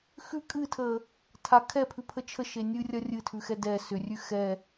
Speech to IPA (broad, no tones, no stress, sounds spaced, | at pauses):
x ʉ kʼ ɨ tʰ ə | tʰ a kʰ ɛ pʰ ʉ pʰ ə t͡ʃʰ ə ʃ e nʲ ɨ rʲ ɐ rʲ ɨ tʰ ʉ x ɛ d ɛ s ʏ rʲ ʉ x ɛ